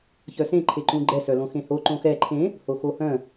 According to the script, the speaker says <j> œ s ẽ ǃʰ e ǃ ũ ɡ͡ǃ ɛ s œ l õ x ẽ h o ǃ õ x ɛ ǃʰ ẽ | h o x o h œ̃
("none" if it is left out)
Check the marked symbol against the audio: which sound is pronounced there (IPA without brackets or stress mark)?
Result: ç